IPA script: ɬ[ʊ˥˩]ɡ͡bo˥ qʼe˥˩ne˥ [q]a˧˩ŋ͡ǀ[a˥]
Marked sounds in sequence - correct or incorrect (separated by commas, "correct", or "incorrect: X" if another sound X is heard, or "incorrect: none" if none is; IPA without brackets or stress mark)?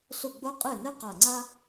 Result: correct, correct, correct